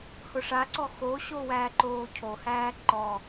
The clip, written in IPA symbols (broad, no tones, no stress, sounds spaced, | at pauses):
h ʊ ʂ a ǀ ɔ x o ɕ o w æː ǃ oː cʰ o h æː ǃ ɔ